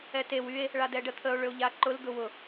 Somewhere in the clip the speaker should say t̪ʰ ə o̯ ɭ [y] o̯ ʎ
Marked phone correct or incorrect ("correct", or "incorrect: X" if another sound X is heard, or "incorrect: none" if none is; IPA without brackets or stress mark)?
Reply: incorrect: ʏ